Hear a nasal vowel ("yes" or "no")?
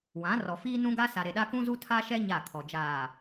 yes